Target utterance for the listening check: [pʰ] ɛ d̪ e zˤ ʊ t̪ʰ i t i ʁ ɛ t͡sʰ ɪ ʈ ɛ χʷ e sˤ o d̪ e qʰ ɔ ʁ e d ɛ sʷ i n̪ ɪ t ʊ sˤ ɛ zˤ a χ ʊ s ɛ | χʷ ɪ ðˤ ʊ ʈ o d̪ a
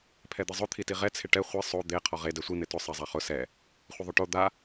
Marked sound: correct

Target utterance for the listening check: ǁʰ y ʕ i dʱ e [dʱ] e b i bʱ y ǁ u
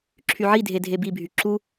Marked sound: correct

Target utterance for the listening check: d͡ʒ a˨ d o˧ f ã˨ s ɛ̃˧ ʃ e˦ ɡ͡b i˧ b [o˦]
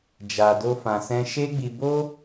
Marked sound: correct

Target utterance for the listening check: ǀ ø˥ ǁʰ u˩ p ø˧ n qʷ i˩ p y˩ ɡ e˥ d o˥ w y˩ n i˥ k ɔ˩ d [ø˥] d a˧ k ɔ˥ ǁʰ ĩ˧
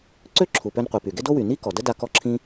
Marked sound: incorrect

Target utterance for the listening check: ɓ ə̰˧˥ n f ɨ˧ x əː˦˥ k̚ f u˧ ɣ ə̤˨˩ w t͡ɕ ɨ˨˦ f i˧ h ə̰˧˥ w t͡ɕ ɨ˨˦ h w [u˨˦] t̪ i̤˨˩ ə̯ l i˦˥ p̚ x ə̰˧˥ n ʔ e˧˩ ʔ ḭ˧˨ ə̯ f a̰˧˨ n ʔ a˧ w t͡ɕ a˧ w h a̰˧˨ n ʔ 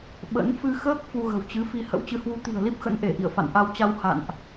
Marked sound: correct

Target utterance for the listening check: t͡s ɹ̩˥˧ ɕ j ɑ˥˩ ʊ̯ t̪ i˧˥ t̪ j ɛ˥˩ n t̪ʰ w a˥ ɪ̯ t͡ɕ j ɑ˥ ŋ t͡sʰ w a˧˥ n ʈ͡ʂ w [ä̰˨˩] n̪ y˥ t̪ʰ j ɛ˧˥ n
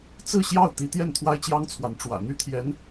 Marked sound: correct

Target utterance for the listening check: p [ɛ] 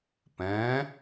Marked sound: incorrect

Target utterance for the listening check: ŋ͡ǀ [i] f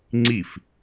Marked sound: correct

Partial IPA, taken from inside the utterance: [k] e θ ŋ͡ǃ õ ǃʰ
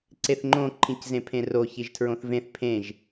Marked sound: incorrect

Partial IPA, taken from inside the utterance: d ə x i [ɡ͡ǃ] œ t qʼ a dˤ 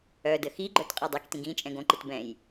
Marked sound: correct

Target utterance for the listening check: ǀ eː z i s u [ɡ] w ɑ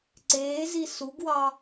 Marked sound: correct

